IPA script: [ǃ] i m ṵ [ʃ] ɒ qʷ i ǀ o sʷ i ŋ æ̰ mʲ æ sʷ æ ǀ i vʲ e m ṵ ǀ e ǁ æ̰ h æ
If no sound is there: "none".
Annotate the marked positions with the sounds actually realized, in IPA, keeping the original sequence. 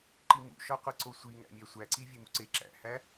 ǃ, ʃ

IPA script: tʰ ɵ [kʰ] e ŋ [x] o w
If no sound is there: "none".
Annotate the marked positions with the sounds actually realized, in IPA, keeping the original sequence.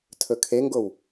kʰ, ɡ

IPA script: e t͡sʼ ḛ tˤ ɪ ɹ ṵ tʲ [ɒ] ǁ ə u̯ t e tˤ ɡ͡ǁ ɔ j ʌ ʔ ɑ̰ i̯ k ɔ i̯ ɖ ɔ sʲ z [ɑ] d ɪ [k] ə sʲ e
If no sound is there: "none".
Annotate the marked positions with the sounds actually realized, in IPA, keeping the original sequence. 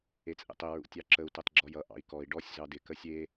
ɑ, ɑ, k

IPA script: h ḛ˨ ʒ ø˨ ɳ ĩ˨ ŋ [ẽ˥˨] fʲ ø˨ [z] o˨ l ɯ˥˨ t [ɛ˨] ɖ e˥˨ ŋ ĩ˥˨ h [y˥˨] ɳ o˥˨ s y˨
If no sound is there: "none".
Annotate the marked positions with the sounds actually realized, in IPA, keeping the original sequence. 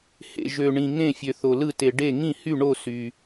ẽ˥˨, θ, e˨, y˥˨

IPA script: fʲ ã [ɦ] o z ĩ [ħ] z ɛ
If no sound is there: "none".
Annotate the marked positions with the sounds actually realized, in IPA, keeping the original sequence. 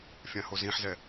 h, ħ

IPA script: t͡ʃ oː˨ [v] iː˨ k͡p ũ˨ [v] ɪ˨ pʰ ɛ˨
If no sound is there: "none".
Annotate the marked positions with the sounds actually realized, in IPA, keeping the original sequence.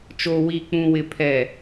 w, w

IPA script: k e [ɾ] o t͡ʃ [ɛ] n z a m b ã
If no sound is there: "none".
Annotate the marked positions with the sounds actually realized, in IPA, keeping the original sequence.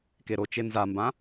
ɾ, e

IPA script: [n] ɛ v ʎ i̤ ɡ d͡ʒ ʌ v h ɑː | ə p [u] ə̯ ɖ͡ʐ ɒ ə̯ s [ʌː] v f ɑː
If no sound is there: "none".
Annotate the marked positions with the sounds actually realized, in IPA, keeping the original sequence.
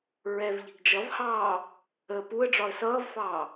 ɹ, u, ʌː

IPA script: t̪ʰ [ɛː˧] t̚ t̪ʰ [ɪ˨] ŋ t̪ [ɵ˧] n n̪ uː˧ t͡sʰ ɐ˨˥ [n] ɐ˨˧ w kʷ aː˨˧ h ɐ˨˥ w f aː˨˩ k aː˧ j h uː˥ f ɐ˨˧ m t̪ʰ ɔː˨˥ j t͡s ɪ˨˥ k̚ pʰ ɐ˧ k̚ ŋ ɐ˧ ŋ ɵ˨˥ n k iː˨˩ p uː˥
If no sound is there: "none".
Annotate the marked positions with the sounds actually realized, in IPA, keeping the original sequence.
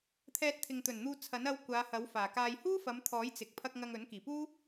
ɛː˧, ɪ˨, ɵ˨˩, n

